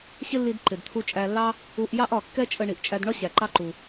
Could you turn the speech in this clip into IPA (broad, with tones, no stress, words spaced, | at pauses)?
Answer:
ɕɪ˥lːi˧d ǃɪ˩dt̪ʰu˧t͡ʃʼæ˧lːɑ˥ | u˧ʔ jɑ˥ʔɒ˩ kːɛ˥t͡ʃʼə˧ ɳi˩ʔt͡ʃʼæ˧dɳɒ˥ ɕæ˩ǃɑ˧ǃu˩